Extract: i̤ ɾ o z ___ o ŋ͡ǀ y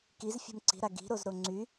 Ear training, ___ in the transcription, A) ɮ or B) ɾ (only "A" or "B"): B